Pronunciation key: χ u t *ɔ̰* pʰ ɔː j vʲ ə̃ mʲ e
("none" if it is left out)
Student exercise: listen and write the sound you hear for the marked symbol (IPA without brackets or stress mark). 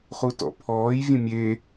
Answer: ɔ̰